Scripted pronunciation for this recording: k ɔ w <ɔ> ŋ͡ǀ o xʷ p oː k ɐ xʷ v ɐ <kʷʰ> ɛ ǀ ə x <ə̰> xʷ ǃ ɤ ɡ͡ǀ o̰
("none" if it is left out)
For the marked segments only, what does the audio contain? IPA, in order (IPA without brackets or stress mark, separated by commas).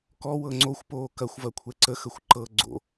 ɤ, kʷʰ, ə